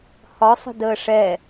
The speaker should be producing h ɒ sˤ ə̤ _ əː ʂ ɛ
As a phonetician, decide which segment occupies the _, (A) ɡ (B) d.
B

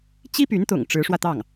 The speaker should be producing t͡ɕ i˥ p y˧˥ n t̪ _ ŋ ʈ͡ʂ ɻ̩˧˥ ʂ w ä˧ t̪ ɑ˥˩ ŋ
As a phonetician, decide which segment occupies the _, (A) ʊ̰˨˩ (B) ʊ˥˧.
A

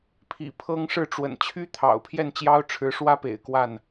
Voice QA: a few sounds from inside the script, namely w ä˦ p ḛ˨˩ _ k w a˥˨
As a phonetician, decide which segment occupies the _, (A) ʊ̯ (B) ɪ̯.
B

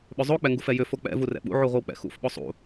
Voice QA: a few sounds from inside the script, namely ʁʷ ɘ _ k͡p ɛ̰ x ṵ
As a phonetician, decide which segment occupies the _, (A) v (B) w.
B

